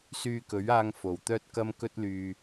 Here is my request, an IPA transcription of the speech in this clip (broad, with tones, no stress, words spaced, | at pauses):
syː˧kɵ˨˥ɥaː˧ŋ fo˨wt̪œː˥t̚kɐ˥m kɵ˥t̚lyː˧